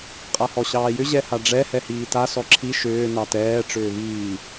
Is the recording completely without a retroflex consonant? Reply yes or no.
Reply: no